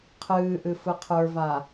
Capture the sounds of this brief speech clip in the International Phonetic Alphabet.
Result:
qʰ ɨː ʔ ɨ f ɯ qʰ ə˞ v a

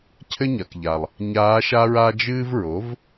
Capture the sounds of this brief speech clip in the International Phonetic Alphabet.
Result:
cʰ ɘ˥ ɲ ɐ˩ k ʎ a˩ lˠ | ɲ aː˧˥ ʃ a˥ ɹ a˥ d͡ʒ ɨː˥ v ɹ o˩˥ v

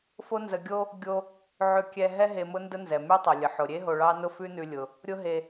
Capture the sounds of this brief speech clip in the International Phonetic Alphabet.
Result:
f o˥ n z ə˧ ɡʲ o˥ | ɡʲ o˧ | ʕ ʉ˧ kʲ ɛ˧ ɦ ɛ˥ ɦ e˧ m ʊ˥ n d ə˥ n z ɛ˩ m ʉ˥ tˤ ʊ˩ lʲ ə˩ ħ ʊ˩ ɾʲ e˥ ɦ o˧ ɭ ɑ˥ n ʊ˥ f ʉ˥ n ʉ˧ lʲ ʊ˩ | ɾʲ ʊ˥ ɦ e˧

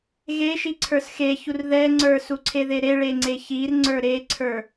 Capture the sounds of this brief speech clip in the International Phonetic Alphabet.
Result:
ɣ e ʃ i ǀʰ ə˞ s x e ç u r ð ɛ ŋ͡ǀ ə˞ s u ǀʰ e ð e ɾ e ɭ e ŋ͡ǀ e ç i r ŋ͡ǀ ə˞ ɾ e ǀʰ ə˞

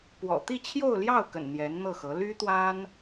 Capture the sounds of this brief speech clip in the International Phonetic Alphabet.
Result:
p w ɔ̰˨˩ t̪ i˥˧ t͡ɕʰ j o˥˧ ʊ̯ l j ɑ˥˩ ʊ̯ k ə̰˨˩ n n̪ j ɛ˧˥ n n̪ ɤ˥˩ x ɤ˧˥ l y˥ t̪ w a˥ n

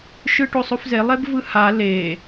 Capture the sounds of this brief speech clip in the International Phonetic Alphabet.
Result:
ʃ ɯ ʈ o sˤ o f z e lˠ e b v ɯ h a l e

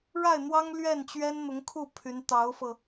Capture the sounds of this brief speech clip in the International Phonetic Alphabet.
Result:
ɻ a˥˩ ɪ̯ n̪ w ɑ˥ ŋ l ɥ ɛ˥˩ n t͡ɕ ɥ ɛ˥ n n̪ ʊ˧˥ ŋ kʰ u˥˩ pʰ y˧˥ n t̪ ɑ˧˥ ʊ̯ f ɤ˧

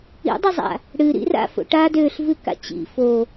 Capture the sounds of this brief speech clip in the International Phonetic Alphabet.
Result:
ḭ dˤ ɨ zˤ a̰ | ɽ ɨ ɾ ḭ r a̰ f o̰ ʈ a d ø ɬ v ɨ k a̰ t͡ɕ ḭ f o

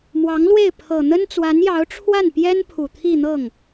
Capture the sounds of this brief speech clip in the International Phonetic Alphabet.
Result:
m w ɑ˧˥ ŋ l w e˥˩ ɪ̯ pʰ ɤ˨˩ n̪ ə˥ n t͡s w a˧˥ n j ɑ˧˥ ʊ̯ ʈ͡ʂʰ w a˥˩ n p j ɛ˥ n pʰ u˨˩ t̪ʰ i˥˧ n̪ ɤ˥˩ ŋ

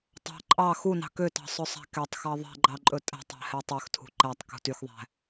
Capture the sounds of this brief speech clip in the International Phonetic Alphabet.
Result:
tˤ ɑ̤ ǃʼ ɑ x u n ɑ̤ k ø t ɑ̤ sˤ ɵ sˤ æ̤ k ɛ tˤ x ɑ ðˤ ɛ̤ ɡ͡ǃ ɑ ǃʼ ɵ tʼ æ̤ tˤ æ̤ h ɛ tˤ ø x tʰ ṳ ǃ æ tˤ k ṳ t y x ðˤ æ̤

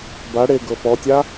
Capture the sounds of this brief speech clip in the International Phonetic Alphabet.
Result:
b a ɽ e ɡ ɤ p ɔ tʲ a

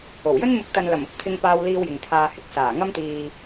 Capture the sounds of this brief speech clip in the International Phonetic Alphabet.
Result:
o˨˩ w j ɵ˥ n m ɪ˨˥ k̚ t̪ ɐ˨ n l ɐ˨˩ m ʊ˨ k̚ t̪ʰ ɪ˧ ŋ p aː˧ w l iː˧ w j ɪ˨ ŋ t̪ʰ aː˨ h ɪ˧ k̚ s aː˨˩ ŋ ɐ˥ m t̪ iː˧

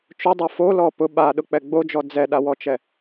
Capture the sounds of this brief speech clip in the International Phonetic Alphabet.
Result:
t͡ʃ ʊ dˤ o f o l ɔ p ʊ ɓ a ɗ ʊ k͡p ɛ ɡ͡b o d͡ʒ ɔ d͡z ɛ ɗ a w ɔ t͡ʃ ɛ

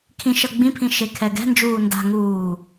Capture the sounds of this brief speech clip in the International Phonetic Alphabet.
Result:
kʰ ĩ ʃ ʌ ɡ͡b ĩ pʰ ĩ ʃ e kʰ ɛ ɡ ɛ̤ n d͡ʒ uː n d a̤ ŋ uː

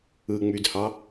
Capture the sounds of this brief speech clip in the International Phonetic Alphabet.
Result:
ɯ ŋ͡m y d h ɑ

